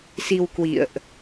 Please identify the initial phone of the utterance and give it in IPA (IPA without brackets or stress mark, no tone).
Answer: s